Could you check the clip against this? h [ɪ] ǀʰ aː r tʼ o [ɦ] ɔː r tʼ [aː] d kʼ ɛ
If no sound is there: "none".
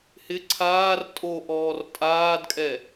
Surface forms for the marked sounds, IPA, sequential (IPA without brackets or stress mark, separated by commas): ɪ, ʔ, aː